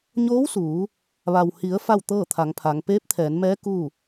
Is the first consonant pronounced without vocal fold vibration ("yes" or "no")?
no